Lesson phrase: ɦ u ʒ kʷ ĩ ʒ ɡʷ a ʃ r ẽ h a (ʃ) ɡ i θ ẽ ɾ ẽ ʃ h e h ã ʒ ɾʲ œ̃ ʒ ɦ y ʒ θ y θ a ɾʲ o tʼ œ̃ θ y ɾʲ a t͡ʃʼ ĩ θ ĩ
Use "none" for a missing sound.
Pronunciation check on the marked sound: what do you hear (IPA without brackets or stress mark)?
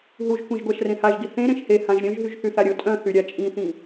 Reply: ʒ